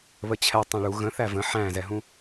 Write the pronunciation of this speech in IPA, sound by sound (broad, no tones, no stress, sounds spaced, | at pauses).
β ə t͡ɕʰ ɛ tˤ ɛ̃ ɭ u ɣ ə̃ θ æ v ə̃ ħ æ̃ z ɛ ɦ ũ